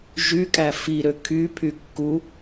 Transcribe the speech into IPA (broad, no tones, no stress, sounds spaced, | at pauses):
ʒ y kʼ æ f i ɾ ø kʰ y pʰ y kː u